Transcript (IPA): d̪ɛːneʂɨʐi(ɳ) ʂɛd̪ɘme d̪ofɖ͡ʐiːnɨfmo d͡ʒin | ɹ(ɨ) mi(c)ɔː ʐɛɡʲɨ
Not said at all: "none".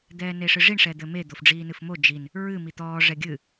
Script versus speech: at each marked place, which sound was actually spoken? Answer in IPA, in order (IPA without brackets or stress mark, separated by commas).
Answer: ɳ, ɨ, t̪